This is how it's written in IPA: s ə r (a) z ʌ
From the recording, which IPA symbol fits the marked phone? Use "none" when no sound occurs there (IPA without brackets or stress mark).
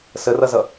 ʌ